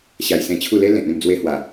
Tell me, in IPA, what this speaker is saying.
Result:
ɕ a˧ j s ẽ˧ t͡ɕʰ u˥˧ l e˦ l ẽ˨ t̚ ẽ˥˧ m d͡z w e˧ h w a˨˩

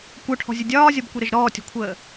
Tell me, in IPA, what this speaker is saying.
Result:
kʷ œ ʈʰ ɔ̤ zʲ ə dʲ ɒː zʲ ɒ b kʷ i ɾ ə ʒ ɾ ɔː tʲ ɔ̤ kʷʰ əː

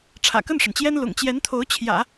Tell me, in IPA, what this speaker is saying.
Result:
ʈ͡ʂʰ ä̰˨˩ k ə˥˩ n ʂ ə˩ n t͡ɕ j ɛ˥ n l ʊ̰˨˩ ŋ t͡ɕ j ɛ˧˥ n t̪ʰ o˧˥ ʊ̯ t͡ɕʰ j ä̰˨˩˦

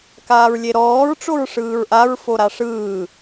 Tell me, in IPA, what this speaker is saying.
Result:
k aː ɹ lʲ e ɾ ɔː ɹ ʈ͡ʂ o ɹ ʂ ɯː ɹ ʔ a ɹ f o ɾ a ʂ ɯː

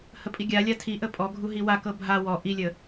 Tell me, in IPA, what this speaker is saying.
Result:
h ə pʼ i ɡʲ a lʲ a tʰ i ʔ ə pʼ ɔ ɡʱ u ɦ i w a k ɤ bʱ a w ɔ ʔ i lʲ ə

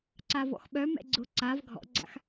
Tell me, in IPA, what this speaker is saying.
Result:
ǀ a v ɔ̰ x ɓ œ m ɛ̰ ɡ͡ǀ ʊ ǀ a v ɡʱ ɔ̰ ɡ͡ǀ a̰ x

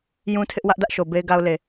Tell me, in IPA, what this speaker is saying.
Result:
j ũ˦ tʰ ɪ˦ ʔ w ä˦ ʔ d ä˦ ʔ ʃ o˨ b e˦ ɪ̯ ɡ a˦ ʊ̯ l e˨

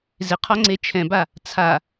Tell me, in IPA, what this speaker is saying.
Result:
z ɪ qʰ ɒ ŋ͡ǀ e t͡ʃʰ ɛ̃ b a | t͡sʰ a

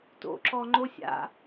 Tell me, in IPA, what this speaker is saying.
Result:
t o̰ ǁ ɔ ŋ͡ǃ o sʲ a̰

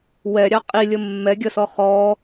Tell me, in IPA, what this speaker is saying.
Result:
w ɛ ɾʲ ɑ qʼ i lʲ ə mː ɛ ɡʲ ə s ɔ χ ɔ

